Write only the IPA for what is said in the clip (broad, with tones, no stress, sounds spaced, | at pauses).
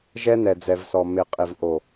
ʒ ɛ˦ n ɛ˨ d͡z ɛ˨ v s ɔ˨ m ɪ˨ qʼ ɪ˨ v ʔ o˨